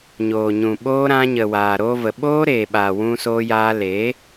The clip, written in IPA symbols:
ɲoː˨ɲũ˨ ɓoː˧ɾã˧ɲə˨ waː˨ɾoː˧və˨ ɓoː˦ ɾeː˨ɓaː˨ wũ˧soː˧jaː˧ leː˨˦

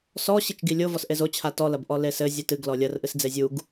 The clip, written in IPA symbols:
sɔ ɕit͡ʃɡilʲo vɔsʔezo t͡ɕʰatɔ lɐbʔɔlesɘ zʲɨtɨɡ lɔlʲɐr ʔɨsd͡zezʲuɡ

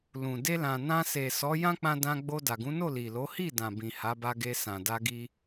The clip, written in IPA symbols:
lũ˨ de˧lã˨ nã˧se˨sɔ˨˦ jã˦k͡pã˧dã˧ɡ͡bo˧ da˨ɡũ˨˦no˦˨ li˨lo˨˦hi˦˨dã˨ bĩ˨ha˨˦ba˧ɡe˧ sã˨da˧ɡi˧

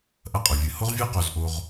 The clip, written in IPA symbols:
ʔɐ˧qʼɵ˩vʲɨ˩ ho˥ʁvʲʉ˥ qo˧zʔo˧ʁ

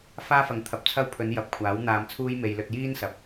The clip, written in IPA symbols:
faː˥fɐ˨˥ŋt̪ʰɐ˨p̚t͡sʰɐ˥w pʰɵ˨˧njɐ˨˥p̚kʷʰaː˨˥w n̪aː˧mt͡sʰuː˥jme˧j lɵ˧t̚jiː˥nsɐ˨p̚

